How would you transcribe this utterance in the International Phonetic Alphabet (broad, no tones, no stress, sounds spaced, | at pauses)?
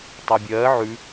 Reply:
tˤ a bʲ ɜː ʕ ʉ